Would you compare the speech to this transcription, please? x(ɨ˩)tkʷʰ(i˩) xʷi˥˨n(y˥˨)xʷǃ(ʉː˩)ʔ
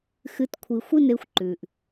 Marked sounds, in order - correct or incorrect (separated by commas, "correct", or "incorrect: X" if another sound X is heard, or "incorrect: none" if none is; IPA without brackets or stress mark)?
incorrect: ɨ˩˥, correct, incorrect: e˥˨, correct